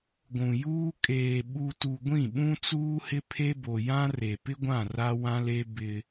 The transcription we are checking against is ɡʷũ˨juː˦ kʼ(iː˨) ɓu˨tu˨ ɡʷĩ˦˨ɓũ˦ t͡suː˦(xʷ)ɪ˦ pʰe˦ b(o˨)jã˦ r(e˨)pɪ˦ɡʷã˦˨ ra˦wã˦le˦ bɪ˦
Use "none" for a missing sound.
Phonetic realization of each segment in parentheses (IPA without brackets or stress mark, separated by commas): eː˨, h, o˨, e˨